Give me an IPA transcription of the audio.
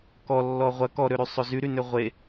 k ɔ lː ɔ ʁʷ ɐ k ɔ ɾ ø ɾ y sˤ ø z y ɾ y n ø ʁʷ e

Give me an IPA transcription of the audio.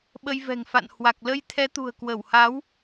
ɓ ə˧ j v ɛ̤˨˩ ŋ f a̰˧˨ n h w a˨˩ k̚ l ə˧ j t̪ʰ ɛ˨˦ t̪ ṳ˨˩ ə̯ k w ə˧˩ w h a˨˦ w

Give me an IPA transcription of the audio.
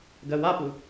ɡ ɜ w a p u

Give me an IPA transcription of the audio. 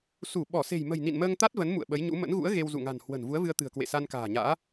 s u˧˩ ɓ ɔ˧˩ s e̤˨˩ j m ə̤˨˩ j n ḭ˧˨ n m əː˧ ŋ t̪ a˦˥ t̚ v ə˨˦ n m ṵ˧˨ ə̯ ɓ ə˨˦ j ɲ ṵ˧˥ m ə̰˧˥ n ɣ ṵ˧˥ ə̯ ɣ e˧ w z ṵ˧˨ ŋ a̤˨˩ n h w ə̤˨˩ n v u˨˦ ə̯ v ɨ˧ ə̯ t̪ ɨ̤˨˩ ə̯ k w ḛ˧˨ s a˧ n k a̤ː˨˩ ɲ a̰ː˧˥

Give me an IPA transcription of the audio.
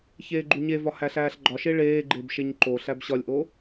ç eː ɡ͡ǃ u ɲ e v ɒ h æ ɬ æː ɬ ɡ͡ǃ ɒ ʃ e ɭ eː ɡ͡ǃ e b ʃ e ɲ ǃ o ɬ æ b ɕ ɒ lʲ ʔ o

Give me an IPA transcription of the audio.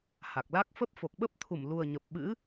h a˨˩ k̚ l a˦˥ k̚ f ə˦˥ p̚ f o˨˩ k̚ ɓ ə˦˥ p̚ t̪ʰ u˧˩ m l u˨˩ ə̯ ɲ ə˨˩ p̚ ɓ ɨ̰˧˥

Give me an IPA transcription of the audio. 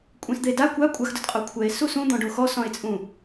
kʷʼ ẽ s d̪ e d a kʷ a kʷʼ a x d ʊ d qʼ o kʷʰ ɛ e̯ s u s ũ d̪ ɔ̃ ɖ o x ɔ s ɔ̃ e̯ t͡sʼ ũ

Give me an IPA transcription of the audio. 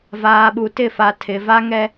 v aː˨ ɓ u˨ t ɪ˦˨ f a˨ tʰ ɪ˨ v a˦ ŋ ɛ˦

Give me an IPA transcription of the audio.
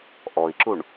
ʔ ɔ i̯ ǁ u ɳ

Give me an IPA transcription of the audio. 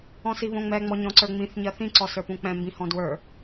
ɔ̃ s i β õ ŋ͡m ɛ ŋ͡m ɔ ɲ ɔ̃ ǀ ə˞ ŋ͡m ĩ θ ɲ ɜ θ ĩ ǀ ɔ s ə˞ p ũ k͡p ɛ̃ m b ĩ h ɔ̃ d w ə˞

